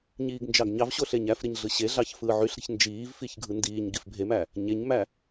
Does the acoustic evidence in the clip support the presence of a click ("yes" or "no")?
no